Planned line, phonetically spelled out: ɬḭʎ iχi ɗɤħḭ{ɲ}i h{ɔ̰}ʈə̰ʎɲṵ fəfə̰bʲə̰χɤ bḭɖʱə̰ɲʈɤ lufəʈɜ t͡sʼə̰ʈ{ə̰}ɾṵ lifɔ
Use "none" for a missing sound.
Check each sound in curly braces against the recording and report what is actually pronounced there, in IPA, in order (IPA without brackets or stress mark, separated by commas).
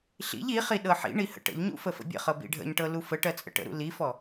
ɳ, ə̰, ə̰